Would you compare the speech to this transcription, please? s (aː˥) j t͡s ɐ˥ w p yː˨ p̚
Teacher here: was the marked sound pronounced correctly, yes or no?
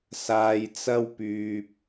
no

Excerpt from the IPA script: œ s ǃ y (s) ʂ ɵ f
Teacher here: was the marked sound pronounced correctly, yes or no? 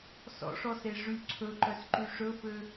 no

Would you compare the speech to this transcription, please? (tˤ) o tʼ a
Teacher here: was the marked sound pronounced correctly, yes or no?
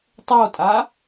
yes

